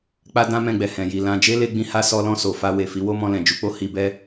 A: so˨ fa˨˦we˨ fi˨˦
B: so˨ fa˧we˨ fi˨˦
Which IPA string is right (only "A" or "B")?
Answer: B